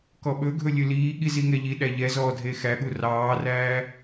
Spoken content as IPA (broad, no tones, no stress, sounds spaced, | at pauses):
k ɔ ɓ ɵ ɡʱ ɵ lʲ ɵ l iː ɠ i z i ŋ ɛ ʎ i ɗ æ ʎ ɛ z ɔː dʱ e x æ ɠ u r ɑː r æː